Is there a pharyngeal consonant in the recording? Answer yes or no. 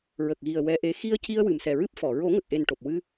no